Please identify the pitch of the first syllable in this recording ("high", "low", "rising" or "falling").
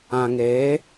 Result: low